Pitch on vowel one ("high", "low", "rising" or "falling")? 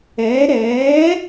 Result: rising